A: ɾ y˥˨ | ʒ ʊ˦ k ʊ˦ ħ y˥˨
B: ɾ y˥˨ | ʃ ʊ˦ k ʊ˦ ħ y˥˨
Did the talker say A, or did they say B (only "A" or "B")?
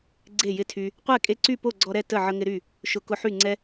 B